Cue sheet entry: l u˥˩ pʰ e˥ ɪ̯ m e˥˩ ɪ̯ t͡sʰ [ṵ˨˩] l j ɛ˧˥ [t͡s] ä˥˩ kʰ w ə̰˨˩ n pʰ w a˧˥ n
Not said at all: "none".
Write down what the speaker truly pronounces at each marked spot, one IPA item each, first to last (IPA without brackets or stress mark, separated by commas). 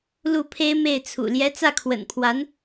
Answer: ṵ˨˩, t͡s